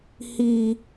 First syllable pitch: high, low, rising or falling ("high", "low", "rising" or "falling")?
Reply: high